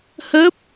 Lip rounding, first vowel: unrounded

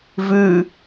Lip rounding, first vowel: rounded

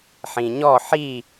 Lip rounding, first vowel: unrounded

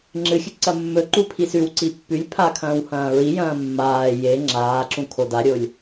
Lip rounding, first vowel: unrounded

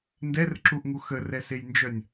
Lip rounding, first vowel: unrounded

